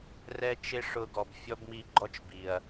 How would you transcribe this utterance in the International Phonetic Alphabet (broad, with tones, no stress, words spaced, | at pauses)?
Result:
rɛ˦t͡ʃɪ˦ʂʊ˧ɡɔ˨b fʲɔ˦bmi˦˨ ɡ͡ǃɔ˦t͡ʃbi˨ɐ̯